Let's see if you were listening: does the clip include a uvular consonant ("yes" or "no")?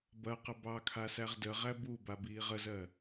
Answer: yes